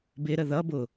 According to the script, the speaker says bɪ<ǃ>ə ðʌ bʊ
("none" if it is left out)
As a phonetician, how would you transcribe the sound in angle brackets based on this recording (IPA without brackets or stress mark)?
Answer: ɾ